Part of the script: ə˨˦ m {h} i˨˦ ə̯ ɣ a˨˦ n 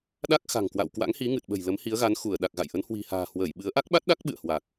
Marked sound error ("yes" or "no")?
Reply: no